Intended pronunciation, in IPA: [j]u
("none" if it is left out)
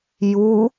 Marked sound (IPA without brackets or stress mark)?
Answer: j